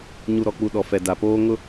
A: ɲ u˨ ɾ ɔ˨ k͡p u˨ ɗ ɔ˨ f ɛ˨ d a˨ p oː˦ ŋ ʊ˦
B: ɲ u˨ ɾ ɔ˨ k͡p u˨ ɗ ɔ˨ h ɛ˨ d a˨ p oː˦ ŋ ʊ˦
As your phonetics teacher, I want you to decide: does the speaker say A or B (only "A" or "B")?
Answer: A